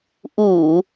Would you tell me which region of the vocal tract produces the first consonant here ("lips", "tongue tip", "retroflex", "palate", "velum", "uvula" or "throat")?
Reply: throat